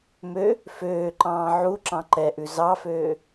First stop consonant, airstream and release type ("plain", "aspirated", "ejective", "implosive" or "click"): click